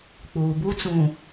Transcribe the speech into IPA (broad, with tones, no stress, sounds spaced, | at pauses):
k͡p uː˨ b u˦ t͡s ũ˨